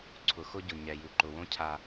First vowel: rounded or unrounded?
rounded